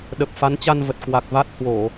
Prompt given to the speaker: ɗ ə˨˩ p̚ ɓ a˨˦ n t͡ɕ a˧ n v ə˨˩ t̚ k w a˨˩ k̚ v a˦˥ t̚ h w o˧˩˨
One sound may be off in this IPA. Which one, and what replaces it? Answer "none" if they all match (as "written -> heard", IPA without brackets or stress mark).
ɓ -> f